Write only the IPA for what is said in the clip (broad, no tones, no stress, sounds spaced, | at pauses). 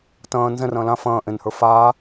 t ɐ̃ː n z ɛ̃ r ɐ̃ː l ã f ɐ̃ː ʔ ẽ n h ə˞ f aː